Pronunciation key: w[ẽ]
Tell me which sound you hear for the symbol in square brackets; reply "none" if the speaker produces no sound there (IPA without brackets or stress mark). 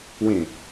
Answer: ẽ